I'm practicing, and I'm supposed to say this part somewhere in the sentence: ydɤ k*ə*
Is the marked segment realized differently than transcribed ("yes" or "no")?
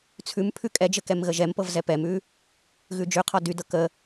no